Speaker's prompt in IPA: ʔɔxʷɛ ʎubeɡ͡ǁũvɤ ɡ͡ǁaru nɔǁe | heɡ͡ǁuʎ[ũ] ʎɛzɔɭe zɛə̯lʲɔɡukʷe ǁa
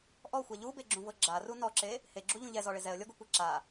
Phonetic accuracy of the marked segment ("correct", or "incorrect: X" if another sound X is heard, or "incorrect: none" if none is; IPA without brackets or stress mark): correct